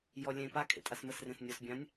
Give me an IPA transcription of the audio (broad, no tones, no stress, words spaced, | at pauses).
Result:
jɔlʲẽːpa kʰḛtʼasməs rẽsnʲɔsbʲãnʲ